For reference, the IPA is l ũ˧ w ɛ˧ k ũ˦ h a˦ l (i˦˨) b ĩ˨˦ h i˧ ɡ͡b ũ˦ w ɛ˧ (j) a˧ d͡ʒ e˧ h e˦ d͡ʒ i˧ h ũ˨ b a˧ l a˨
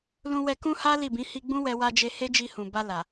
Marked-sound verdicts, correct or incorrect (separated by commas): correct, incorrect